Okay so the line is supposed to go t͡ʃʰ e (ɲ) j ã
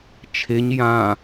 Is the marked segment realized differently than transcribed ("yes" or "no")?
no